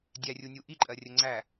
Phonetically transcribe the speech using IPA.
dʲ æ rʲ u nʲ u ʔ i ǃʼ ɜ rʲ ə ŋ͡ǀ æ

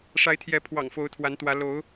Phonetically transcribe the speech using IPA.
ʂ a˨˦ ɪ̯ t̪ʰ j ɛ˨˦ pʰ w ɑ̰˨˩ ŋ f o˨˦ ʊ̯ t̪ʰ w a˨˦ n t̪ w ä˨˦ l o˨˦ ʊ̯

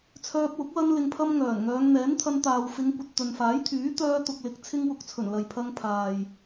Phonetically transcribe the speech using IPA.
t͡sʰ œː˧ p̚ w ʊ˨˥ k̚ w ɐ˥ n l ɪ˨ ŋ pʰ ɐ˧ m ŋ œː˨˩ n ŋ œː˨˧ ŋ n̪ ɛː˨˥ n t̪ʰ ɐ˧ n t̪ aː˨ w f ɪ˨˧ ŋ kʷ ɐ˨ t̚ t̪ ɵ˨ n f aː˨˥ j t̪ʰ yː˨˥ t̪ œː˧ t̪ ʊ˨ k̚ l ɪ˨˥ k̚ t͡sʰ ɪ˧ ŋ w ʊ˨ k̚ t͡sʰ ɵ˨˩ n l ɐ˨ j pʰ ɐ˧ ŋ pʰ aː˨ j

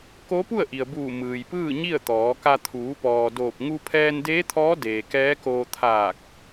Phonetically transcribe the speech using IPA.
k o˧˥ p u˥˨ ə̯ ʔ i˩ ə̯ b uː˧˩ m ɯː˩ j p ɯː˥˨ ɲ i˥˨ ə̯ t̪ ɔː˩˧ k a˧ t̪ʰ uː˩˧ p ɔː˩ d oː˧˩ p̚ ŋ u˧ pʰ ɛː˧ n d eː˧˥ t̪ʰ ɔː˧˥ d eː˩ k ɛː˧˥ k oː˧ t̪ʰ aː˧˩ k̚

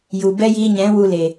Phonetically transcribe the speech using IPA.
j u˨ b ɛ˦ j iː˧ ɲ ɛ̃˨˦ w u˧ l e˨

